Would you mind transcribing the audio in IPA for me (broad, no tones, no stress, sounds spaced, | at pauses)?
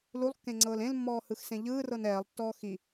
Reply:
l u lˠ kː ẽ ŋ͡ǀ ɤː l ẽ l mː ɔː h ɯ x s ẽ ʎ ɯː r ɤ n ɛː lˠ tː ɔː x i